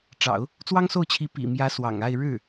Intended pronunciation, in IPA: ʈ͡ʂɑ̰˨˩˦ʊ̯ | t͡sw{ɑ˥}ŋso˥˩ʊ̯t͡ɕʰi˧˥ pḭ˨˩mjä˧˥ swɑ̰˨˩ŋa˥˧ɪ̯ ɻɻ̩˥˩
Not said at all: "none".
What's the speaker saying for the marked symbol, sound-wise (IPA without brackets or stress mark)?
ɑ˥